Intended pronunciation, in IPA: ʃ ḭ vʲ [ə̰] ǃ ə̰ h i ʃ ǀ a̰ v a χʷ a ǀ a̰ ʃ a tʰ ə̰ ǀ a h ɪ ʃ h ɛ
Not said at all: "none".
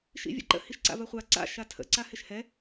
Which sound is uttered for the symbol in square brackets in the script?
ə̰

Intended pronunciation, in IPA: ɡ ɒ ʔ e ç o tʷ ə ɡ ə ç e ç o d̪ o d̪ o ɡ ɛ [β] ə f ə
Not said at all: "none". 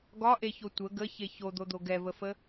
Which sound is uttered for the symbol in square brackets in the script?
v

